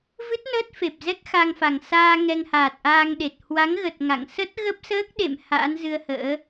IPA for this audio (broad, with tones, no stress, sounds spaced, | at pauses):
v ɨ˦˥ t̚ n əː˦˥ t̚ f e˨˩ p̚ z ɛ˦˥ k̚ x a˧ ŋ f a˨˩ ŋ s aː˧ ŋ ɛ˧ ŋ h aː˨˩ t̚ ʔ aː˧ ŋ ɗ e˨˩ t̚ h w a˨˦ ŋ ɣ ə˨˩ t̚ ŋ a̰˧˨ ŋ s ə˦˥ t̚ ɣ ə˦˥ p̚ s əː˦˥ k̚ ɗ ḛ˧˨ m h a̰ː˧˥ n z ɨ˧ ə̯ h ə̰ː˧˥